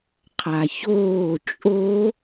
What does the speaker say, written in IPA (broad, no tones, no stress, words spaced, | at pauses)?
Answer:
qʰaçoː t͡ʃʼo